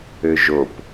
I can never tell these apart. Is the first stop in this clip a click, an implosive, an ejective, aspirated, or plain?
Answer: plain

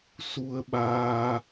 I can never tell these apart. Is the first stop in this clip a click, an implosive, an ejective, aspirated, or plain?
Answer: implosive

